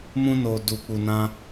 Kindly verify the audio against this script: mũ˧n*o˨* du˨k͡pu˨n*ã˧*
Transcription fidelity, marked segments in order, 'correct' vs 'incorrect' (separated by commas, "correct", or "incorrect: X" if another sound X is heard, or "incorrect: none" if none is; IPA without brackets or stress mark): correct, correct